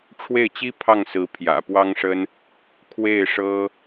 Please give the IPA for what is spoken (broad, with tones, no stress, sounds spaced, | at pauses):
ʈ͡ʂʰ w e˥˩ ɪ̯ t͡ɕ i˥ pʰ ɑ˥˩ ŋ s ɹ̩˧˥ pʰ j ä̰˨˩ p w ɑ˥ ŋ ʂ ə˥ n | kʰ w e˥˩ ɪ̯ ʂ ɤ˥